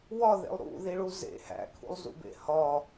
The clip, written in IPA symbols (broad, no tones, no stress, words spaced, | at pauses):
wɒðḛlˠ ɾṵðiɭu zḛ hæ̰kʰṵlˠzṵbḛ hɒ